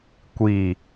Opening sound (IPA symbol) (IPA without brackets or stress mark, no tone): kʷ